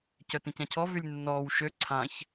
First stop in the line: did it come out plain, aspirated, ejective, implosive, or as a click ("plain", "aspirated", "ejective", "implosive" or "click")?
plain